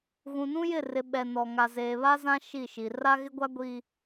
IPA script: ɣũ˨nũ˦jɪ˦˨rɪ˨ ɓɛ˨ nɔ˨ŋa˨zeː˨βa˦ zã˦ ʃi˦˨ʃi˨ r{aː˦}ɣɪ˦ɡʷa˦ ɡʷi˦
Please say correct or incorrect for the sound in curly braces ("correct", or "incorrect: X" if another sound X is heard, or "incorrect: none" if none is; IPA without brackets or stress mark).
incorrect: a˦